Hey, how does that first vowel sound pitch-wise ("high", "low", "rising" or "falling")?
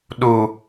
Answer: low